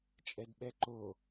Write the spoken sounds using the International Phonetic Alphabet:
t͡ʃʼ ɛ d ɓ ɛ ǃ o

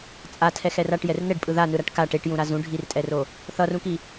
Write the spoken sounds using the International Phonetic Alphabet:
t͡sʼ a tʰ ɛ x ɛ r a ʈ j ɛ r n ɛ ɖ pʼ ɯ ð a n ɯ ɾ a ʈ k a ʈ e ʈ j ũ ɾ a z ũ ɖʱ i r tʼ ɛ r o | θ ʌ r ũ k i

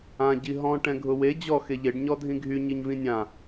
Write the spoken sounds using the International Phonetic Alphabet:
ã ɟ i ɦ ɔ̃ ʈ ɛ̃ ɡʱ ʊ w e d͡ʑ ɔ x e ʎ e ɖ ɲ ɔ dʱ ĩ ɡʱ y ɲ i ɲ v ĩ nʲ ã

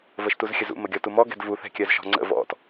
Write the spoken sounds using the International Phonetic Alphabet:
v ə ʃ t u z xʲ ə z ṵ m ə ɡʲ ɔ t u m ɔ ɡ ɛ̤ d v u θ ɛ̤ kʲ ɜ z ʃ ɔ̤ ŋ͡ǀ ə̰ v ɔ̰ t

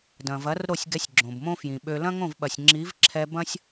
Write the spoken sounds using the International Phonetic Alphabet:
d ɐ̃˨ v ɐ˨˦ r ɾ o˦˨ sʲ ɡ ɛ˧ sʲ ɡ͡ǁ õ˨ b m õ˦ f j ĩ˨ ɓ ø˧ l ɐ̃˦ ŋ õ˦˨ v ɓ ɐ˨ sʲ ŋ͡ǁ i˨˦ v ǁʰ ɛ˧ b ɐ̃˦ sʲ

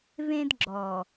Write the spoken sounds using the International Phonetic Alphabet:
v ẽ˦ d ɡ͡ǁ ɔ˨

